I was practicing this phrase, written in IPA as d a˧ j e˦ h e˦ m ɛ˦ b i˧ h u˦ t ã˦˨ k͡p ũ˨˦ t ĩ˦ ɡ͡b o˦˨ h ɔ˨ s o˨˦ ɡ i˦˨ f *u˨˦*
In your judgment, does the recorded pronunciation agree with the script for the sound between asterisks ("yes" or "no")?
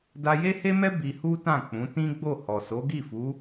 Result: yes